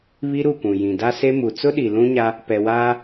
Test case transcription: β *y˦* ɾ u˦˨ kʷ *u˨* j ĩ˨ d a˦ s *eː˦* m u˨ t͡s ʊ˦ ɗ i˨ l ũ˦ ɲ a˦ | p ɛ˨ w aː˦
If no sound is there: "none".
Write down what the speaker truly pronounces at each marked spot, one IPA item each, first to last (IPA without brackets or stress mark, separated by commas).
i˦, ũ˨, e˦